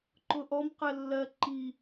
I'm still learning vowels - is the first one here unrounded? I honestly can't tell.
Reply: no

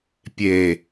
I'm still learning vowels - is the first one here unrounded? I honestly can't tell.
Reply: yes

